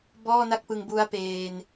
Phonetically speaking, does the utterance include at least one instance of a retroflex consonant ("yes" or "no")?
no